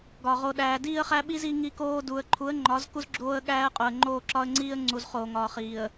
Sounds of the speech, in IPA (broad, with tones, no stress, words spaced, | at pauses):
ɡɒ˨ʁo˨ɗæː˨ diː˦ə̯χæ˦ɓi˦z i˦ŋi˦koː˦ du˨ə̯ǃʰu˨˦ə̯ŋ͡ǃɒ˨˦z ku˦zɡ͡ǁoː˦ə̯ɠæː˦ə̯qʼo˨ə̯ ŋ͡ǃoː˦˨ǁɒ˦ə̯ŋ͡ǀiː˦ə̯ŋ͡ǀu˨z χoː˨ŋɒː˨χiː˨ə̯